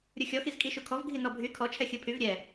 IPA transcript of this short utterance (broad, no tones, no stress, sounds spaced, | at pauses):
ɾʲ u xʲ ɔ x i z kʼ i ʃ u kʰ ɔ v ɡʱ i n ɔ bʱ y kʰ ɔ t͡ʃʰ ɛ xʲ ɯ pʰ y v ɾʲ ɛ